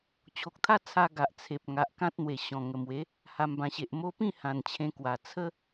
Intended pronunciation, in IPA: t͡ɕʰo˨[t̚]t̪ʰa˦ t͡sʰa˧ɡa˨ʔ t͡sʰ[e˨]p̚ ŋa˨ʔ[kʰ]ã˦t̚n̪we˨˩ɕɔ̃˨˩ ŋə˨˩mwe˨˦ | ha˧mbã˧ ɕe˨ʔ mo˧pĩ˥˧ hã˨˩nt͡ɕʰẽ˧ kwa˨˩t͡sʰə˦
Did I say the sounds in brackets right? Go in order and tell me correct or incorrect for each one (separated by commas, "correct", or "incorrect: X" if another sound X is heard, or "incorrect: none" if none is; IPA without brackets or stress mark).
incorrect: k̚, correct, incorrect: k